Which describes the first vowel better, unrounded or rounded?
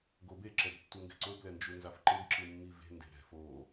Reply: rounded